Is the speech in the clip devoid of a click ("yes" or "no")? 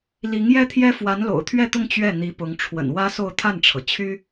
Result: yes